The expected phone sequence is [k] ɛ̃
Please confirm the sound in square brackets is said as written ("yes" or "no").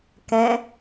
yes